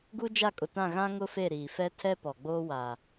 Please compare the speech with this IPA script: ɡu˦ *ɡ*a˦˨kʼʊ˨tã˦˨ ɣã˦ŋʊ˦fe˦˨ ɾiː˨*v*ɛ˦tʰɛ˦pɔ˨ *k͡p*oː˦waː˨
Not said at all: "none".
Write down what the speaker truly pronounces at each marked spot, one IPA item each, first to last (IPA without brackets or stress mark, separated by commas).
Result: d͡ʒ, f, ɡ͡b